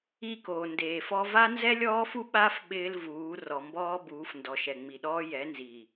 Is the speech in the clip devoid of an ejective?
yes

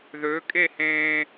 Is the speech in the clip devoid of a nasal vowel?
no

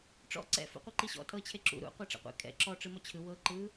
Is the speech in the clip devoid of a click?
no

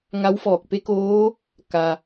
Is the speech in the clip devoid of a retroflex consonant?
yes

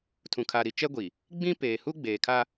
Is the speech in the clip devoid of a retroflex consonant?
yes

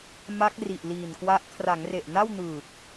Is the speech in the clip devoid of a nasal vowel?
yes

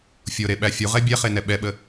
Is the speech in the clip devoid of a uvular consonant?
no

